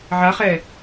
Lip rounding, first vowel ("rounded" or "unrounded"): unrounded